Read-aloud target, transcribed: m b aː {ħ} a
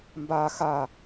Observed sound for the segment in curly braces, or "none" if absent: x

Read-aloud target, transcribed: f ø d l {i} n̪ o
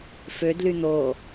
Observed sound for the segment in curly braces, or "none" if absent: y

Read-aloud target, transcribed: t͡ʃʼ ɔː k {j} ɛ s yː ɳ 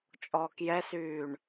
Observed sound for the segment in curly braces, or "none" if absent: j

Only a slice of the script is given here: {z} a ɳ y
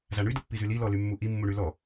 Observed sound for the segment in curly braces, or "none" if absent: z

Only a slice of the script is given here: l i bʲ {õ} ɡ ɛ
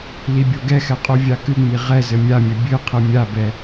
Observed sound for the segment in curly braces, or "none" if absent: o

